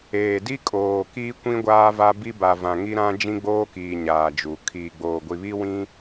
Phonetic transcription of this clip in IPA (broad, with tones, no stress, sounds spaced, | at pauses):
eː˨ d i˦ kʼ oː˨ k iː˦ kʷ ĩ˦ ɡʷ aː˦ v a˦ b i˦ b a˨ v ã˨ ŋ i˦ ɾ ã˦ d͡ʒ ĩ˦ ɡ͡b oː˦ k iː˨ ɲ aː˨ d͡ʒ u˨ kʰ iː˨ ɡ͡b oː˨ ɡʷ i˨ β i˦ w ĩ˦